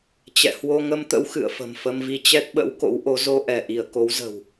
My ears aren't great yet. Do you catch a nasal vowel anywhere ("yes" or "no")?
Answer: no